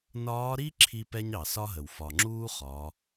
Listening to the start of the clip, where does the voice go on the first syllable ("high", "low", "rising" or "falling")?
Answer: rising